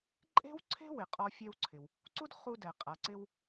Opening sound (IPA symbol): ǃʼ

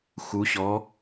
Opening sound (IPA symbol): x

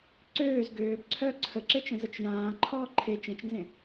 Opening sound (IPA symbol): ǀ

